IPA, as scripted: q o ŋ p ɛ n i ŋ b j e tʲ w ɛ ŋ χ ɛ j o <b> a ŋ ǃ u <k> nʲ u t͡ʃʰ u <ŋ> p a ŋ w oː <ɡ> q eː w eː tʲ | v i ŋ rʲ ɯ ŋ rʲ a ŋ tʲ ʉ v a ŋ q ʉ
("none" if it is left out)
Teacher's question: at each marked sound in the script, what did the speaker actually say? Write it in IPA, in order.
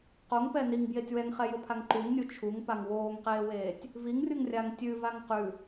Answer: pʰ, ŋ, ŋ, ŋ

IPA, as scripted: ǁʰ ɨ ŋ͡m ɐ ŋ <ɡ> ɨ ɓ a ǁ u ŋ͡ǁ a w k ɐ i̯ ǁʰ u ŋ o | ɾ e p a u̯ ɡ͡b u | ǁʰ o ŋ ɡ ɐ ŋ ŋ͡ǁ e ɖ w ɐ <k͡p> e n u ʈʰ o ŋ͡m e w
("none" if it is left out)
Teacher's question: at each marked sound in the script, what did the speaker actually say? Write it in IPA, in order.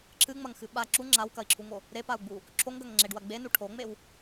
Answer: x, ɡ͡b

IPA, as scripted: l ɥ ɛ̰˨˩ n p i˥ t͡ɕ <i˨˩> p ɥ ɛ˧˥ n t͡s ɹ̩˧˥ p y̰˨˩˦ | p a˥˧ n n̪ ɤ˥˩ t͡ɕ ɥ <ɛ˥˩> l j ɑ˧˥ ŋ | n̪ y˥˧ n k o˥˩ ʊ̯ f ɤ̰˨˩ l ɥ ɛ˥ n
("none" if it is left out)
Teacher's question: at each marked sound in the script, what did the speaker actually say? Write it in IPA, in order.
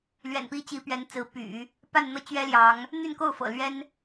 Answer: i˧˥, ɛ˥

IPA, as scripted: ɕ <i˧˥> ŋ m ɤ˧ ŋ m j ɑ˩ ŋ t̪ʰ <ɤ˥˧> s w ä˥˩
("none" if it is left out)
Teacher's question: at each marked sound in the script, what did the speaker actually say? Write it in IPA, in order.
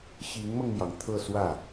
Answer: i˧˥, ɤ˥˧

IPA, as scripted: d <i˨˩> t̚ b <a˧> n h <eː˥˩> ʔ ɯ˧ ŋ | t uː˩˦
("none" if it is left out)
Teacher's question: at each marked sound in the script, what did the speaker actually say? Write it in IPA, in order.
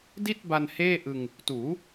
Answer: i˥˩, a˧, eː˥˩

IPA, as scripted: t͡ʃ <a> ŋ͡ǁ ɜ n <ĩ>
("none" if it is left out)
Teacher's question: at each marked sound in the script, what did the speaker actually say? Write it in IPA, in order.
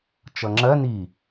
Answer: ʌ, i

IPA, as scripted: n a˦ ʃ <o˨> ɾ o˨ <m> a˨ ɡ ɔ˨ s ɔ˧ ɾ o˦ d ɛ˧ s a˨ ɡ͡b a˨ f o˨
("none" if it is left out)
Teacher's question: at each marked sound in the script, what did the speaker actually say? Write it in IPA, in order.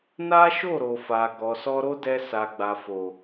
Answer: o˦˨, f

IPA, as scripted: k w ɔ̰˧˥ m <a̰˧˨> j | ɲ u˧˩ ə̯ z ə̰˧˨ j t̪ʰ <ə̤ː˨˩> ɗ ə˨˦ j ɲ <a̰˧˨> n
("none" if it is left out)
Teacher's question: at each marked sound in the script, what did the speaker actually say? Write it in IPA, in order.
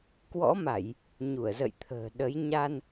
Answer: a˧˩˨, ə̤ː˨˩, a˧

